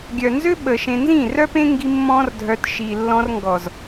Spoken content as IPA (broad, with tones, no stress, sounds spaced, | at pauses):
ɡʲ œ˨ n z ø˦ ɓ əː˨ ʃ ẽ˧ n z ĩ˦˨ r œ˦ p ẽ˦ ŋ ɡ i˦ mː ɔ̃˦ r dʱ œ˧ t ʃ i˨ lː ɔ̃˧ r ŋ ɡ ɔ˨ z